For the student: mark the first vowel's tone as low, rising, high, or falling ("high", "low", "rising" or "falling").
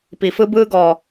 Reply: low